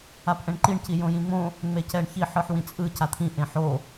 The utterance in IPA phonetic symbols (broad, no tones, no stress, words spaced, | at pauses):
apʔɛ̃ɳǃiɳ cijõjĩŋ͡mõ | ŋ͡mecɛɳçi ħɯħwĩt͡sʼɯ cat̪ʰĩ ʔẽħo